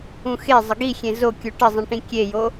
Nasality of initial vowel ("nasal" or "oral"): nasal